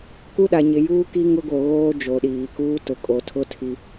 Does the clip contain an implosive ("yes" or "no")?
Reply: yes